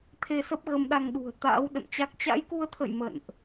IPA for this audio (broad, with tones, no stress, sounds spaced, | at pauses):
t̪ʰ e˧ s ə˦˥ p̚ ɣ ə˧ m ɗ a˧ ŋ ɗ ṳ˨˩ ə̯ t̪ a̰ː˧˥ w ɗ ə̰˧˨ n t͡ɕ a˦˥ k̚ t͡ɕ a̰˧˥ j k u˧ ə̯ t̪ʰ ə̰˧˨ j m ə̰˧˨ n ʔ